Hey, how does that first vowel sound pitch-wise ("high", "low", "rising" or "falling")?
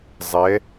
rising